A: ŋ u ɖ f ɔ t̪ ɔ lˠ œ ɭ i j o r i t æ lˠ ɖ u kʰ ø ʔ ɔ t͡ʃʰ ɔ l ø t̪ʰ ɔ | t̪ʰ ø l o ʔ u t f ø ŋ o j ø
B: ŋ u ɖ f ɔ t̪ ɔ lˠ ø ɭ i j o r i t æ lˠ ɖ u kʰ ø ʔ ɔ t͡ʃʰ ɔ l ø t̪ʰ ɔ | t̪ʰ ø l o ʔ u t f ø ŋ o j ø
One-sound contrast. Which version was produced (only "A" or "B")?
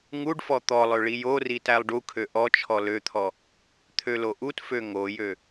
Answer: B